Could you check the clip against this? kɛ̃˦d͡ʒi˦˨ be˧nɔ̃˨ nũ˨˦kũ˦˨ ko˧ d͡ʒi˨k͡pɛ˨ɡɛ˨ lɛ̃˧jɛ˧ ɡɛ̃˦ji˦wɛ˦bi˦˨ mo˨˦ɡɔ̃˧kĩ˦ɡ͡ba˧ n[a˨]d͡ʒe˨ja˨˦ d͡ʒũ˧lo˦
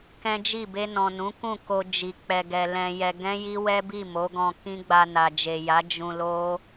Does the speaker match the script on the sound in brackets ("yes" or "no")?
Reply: yes